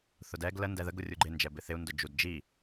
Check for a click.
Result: present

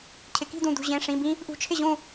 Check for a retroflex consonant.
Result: present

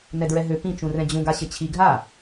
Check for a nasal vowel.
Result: present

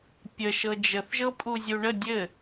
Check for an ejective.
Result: present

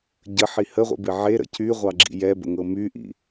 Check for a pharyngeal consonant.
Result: present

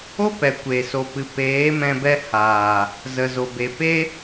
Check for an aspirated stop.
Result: absent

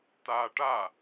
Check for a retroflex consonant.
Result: present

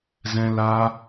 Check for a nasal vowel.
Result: present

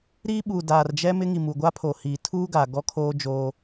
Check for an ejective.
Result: absent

